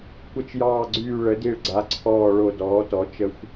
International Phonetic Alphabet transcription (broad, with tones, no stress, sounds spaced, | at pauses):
kʷ ə˨˩ t͡ʃ j ɑː˨˩ ɡ͡ǀ yː˨˩ ɭ ə˩˧ d i˨˩ ɭ ɡ͡ǀ a˩˧ ǀʰ ɔː˨˩ ɭ o˨˩ d ɔː˩˧ t ɔ˩˧ t͡ʃ ə˨˩ xʷ